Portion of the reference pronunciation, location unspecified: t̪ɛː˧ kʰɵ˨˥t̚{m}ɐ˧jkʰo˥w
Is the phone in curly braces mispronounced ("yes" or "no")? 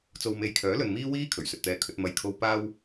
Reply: no